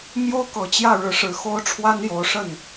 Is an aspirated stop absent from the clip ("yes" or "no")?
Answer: no